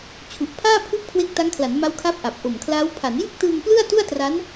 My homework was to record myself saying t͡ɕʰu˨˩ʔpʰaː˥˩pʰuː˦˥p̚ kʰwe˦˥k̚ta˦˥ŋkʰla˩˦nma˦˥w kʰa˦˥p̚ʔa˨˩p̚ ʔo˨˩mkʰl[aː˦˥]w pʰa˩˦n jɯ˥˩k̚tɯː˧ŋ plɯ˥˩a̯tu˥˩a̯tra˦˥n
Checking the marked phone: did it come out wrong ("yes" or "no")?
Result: no